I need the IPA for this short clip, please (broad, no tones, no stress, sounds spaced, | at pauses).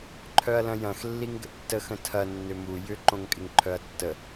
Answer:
ǃʰ œ ɐ̯ l ɐ̃ j ɐ̃ x lː i ŋ ɡ ə̰ tː ə x ə̃ tʰ ɐ nː ʏ m u j ʏ ǃ õ ŋ kʼ ɪ ŋ ǃʰ œ ɐ̯ tː ə